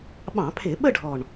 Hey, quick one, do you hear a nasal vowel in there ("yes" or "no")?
yes